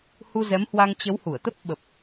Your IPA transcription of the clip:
h u˧ z ɛ˨˦ m h w a˧ ŋ t͡ɕ ə˨˦ w h u˧˩ ə̯ t̪ ə˦˥ p̚ ɓ ə˨˩ p̚

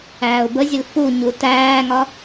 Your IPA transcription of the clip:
æː ʊ̯ b ə zʲ ʊ l f u ɲ u t æː ŋ ɒ

